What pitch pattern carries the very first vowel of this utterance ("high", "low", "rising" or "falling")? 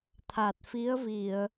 low